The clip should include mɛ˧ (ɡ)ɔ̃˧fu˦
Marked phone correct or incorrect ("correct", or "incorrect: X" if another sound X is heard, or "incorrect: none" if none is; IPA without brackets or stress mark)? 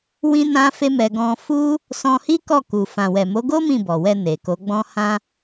correct